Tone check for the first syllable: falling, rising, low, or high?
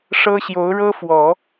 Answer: high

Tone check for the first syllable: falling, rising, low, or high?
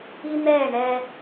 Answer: high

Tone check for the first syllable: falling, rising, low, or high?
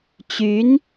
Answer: rising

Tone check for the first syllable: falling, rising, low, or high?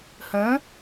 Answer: rising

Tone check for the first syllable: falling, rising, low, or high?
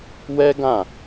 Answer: high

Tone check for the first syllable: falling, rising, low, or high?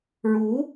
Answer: rising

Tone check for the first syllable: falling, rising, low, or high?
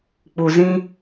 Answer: low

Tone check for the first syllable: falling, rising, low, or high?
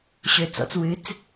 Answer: low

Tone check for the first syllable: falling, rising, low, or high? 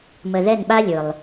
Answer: low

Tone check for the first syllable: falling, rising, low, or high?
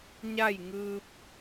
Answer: falling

